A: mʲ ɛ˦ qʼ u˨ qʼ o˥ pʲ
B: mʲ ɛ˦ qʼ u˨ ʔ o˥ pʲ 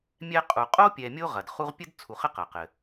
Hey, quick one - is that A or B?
A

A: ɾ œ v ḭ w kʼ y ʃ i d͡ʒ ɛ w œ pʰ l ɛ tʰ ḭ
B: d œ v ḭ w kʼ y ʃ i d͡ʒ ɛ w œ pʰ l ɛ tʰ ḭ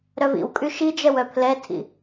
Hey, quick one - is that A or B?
A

